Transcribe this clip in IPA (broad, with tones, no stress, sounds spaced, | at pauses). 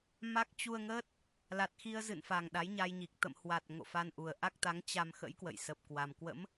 m a˦˥ k̚ t͡ɕ u˧ ə̯ ŋ əː˦˥ t̚ | l a˨˩ t̚ x i˧ ə̯ z ɨ̰˧˨ n f a˨˩ ŋ ɗ a˨˦ j ɲ a˧ j ɲ i˨˩ k̚ t̪ ə̰˧˨ m h w a˨˩ t̚ ŋ o̰˧˨ f a˧ n ʔ u˨˩ ə̯ ʔ a˦˥ k̚ t̪ a˨˦ ŋ t͡ɕ a˧ m x ə̰˧˥ j k w ə̰˧˨ j s ə˨˩ p̚ k w a˨˩ m k w ə̰˧˥ m